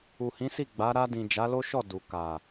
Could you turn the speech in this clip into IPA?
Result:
u˨ h ĩ˨˦ s i˦˨ ɡ͡b a˨˦ ɾ a˧ d ĩ˨ d͡ʒ a˨˦ l o˦ ʃ ɔ˦˨ d u˨ k a˨

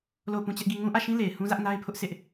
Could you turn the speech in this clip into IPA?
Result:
l o˦˨ ʊ̯ p ũ˦ t͡ɕ ɛ˦ ʔ ɡ i˦˨ ŋ ũ˦ ʔ ä˦˨ ʃ ĩ˦ l e˨ ɪ̯ h ũ˦ z ä˦ ʔ n a˦ ɪ̯ pʰ ʊ˦ ʔ s ɪ˦ ʔ

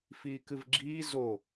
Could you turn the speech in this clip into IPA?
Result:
f iː k ɨ v ɡ͡ǁ iː z o

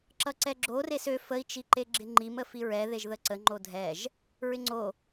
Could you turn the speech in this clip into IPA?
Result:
ǁ ʌ ǀ ɛ ɡ͡ǁ o r e s ø f ə i̯ t͡ʃ i ǃ e ɡ͡ǁ ɪ ŋ͡ǃ i m ə f i ɹ ɛ ð e ʒ ð ə ǀ ə ŋ͡ǃ o dʱ ɛ ʒ | ɹ ɪ ŋ͡ǀ o

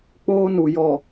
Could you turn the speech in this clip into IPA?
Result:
k͡p oː˦ n u˨ j ɔ˨

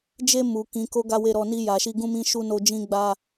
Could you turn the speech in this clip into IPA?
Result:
d͡ʒ e˧ m u˨ k ĩ˨˦ k o˦ ɡ a˦ w e˧ ɾ ɔ˧ n i˧ j a˨ ʃ i˧ ɡ ũ˦ m ĩ˦ ʃ u˦ n o˧ d͡ʒ ĩ˦ ɡ͡b a˧

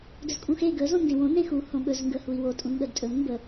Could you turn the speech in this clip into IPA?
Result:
d ɵ z kʼ ũ x e ɡ ə z õ n d ẽ w õ n ẽ x u h õ ɠ ɵ z ŋ ɡ ə h u i̯ w o tʼ ũ n ɠ ə d tʼ ɵ n m b ə

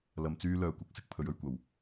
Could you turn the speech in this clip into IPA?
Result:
l ɐ˧ m t͡s yː˥ l œː˨ kʷ ɐ˨˥ k̚ s ɪ˨˥ k̚ pʰ ɵ˨˥ ɥ ɵ˧ ɥ kʷ ɐ˨˩ w

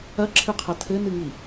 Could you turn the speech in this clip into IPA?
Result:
ɐ ǁʰ ɨ qʰ ɐ tʰ ɘ n ɨ ŋ i

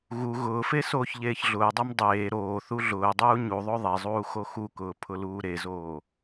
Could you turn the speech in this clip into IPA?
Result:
ɣ u ɣ ʊː f e s oː ç ʎ eː ç ɮ ʊː dˤ e m dˤ eː ɾ oː θ u ɮ ʊː dˤ uː ɲ u ðˤ o ðˤ e zˤ uː x o x u k ʊː pʰ ʊ l uː ɾ e z oː

